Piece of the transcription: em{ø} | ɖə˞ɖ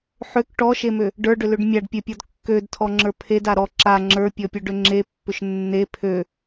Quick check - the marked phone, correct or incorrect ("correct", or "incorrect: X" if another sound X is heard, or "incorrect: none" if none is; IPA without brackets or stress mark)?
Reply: correct